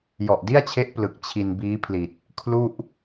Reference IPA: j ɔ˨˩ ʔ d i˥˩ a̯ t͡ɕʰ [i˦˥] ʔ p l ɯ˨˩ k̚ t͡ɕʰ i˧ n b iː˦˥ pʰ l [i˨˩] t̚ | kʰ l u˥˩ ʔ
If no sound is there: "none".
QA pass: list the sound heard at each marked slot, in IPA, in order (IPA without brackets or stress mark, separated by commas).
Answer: e˦˥, i˨˩